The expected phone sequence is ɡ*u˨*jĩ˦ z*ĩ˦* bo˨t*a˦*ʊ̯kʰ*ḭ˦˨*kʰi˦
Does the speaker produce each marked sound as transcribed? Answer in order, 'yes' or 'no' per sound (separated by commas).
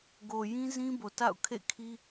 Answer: no, yes, no, no